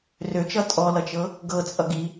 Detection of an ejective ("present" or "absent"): present